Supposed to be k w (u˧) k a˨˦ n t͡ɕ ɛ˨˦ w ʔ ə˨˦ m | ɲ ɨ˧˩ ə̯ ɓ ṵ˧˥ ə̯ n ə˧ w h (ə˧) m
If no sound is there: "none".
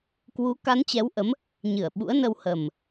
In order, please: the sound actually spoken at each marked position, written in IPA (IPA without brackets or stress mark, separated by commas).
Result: u˨˦, ə˨˩